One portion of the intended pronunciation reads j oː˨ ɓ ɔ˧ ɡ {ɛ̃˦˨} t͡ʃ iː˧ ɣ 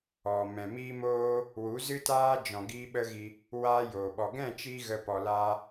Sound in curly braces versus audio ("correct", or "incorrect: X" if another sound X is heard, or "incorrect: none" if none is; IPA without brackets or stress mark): correct